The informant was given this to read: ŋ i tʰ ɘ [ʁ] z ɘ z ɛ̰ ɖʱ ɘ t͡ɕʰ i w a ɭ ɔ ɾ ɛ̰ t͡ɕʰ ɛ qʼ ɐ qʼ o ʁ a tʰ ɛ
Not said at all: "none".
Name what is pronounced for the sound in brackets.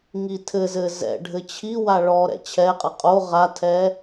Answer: none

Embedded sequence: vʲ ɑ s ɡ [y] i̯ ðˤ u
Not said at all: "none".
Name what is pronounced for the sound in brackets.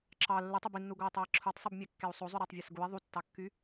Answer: u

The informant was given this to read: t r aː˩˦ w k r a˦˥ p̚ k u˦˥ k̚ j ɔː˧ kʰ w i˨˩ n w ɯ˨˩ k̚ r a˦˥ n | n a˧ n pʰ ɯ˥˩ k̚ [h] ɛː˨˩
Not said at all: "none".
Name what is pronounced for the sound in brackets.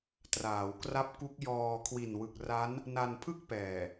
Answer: p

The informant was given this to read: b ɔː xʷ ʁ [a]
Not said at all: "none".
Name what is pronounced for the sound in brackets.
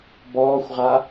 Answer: a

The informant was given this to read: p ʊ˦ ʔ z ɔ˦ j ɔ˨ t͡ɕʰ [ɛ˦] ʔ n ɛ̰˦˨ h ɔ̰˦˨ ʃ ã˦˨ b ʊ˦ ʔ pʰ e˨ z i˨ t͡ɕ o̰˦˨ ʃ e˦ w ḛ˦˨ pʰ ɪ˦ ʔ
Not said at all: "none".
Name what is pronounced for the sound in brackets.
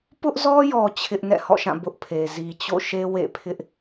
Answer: ɪ˦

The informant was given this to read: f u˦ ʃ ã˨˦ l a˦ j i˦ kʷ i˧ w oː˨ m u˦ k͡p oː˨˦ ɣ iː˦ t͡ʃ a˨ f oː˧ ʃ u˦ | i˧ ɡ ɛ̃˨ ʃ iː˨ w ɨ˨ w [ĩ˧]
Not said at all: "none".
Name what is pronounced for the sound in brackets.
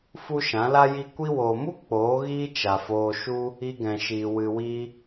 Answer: i˧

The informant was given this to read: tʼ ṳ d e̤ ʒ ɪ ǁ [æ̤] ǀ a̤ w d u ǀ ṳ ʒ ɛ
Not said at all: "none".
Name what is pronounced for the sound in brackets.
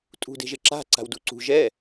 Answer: a̤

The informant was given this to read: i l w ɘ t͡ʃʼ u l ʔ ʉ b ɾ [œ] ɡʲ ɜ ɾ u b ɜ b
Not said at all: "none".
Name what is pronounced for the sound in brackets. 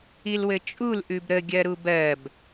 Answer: ə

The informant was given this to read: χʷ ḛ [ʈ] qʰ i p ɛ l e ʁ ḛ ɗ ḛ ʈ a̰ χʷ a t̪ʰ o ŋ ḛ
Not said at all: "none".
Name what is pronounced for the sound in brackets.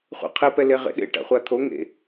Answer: none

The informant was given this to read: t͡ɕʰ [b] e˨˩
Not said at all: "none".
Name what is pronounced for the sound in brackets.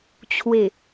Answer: w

